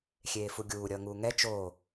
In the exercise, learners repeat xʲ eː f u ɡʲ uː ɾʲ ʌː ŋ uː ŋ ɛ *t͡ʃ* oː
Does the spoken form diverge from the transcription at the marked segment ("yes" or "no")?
no